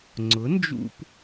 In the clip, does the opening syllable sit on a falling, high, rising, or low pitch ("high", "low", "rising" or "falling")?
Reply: rising